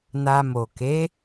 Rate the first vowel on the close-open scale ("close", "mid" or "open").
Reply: open